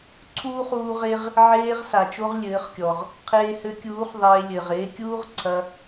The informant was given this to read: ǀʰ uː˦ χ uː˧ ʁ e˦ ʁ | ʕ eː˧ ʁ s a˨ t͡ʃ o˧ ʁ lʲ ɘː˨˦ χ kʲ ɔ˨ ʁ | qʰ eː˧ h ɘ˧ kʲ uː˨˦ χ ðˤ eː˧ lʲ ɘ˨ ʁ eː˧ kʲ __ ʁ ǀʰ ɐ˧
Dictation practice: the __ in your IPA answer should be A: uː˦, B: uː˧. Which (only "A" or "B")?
A